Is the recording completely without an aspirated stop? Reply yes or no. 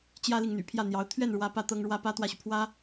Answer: no